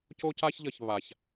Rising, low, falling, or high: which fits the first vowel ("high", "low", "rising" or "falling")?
high